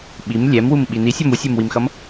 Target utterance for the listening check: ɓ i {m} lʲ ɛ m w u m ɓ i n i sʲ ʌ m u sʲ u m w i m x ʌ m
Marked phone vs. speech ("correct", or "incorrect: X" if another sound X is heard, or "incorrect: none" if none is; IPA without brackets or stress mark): correct